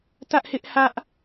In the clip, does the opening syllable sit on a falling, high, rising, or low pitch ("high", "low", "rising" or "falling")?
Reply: high